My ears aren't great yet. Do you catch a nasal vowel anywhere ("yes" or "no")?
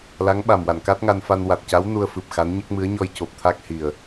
no